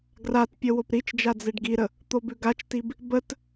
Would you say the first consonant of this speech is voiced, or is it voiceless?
voiced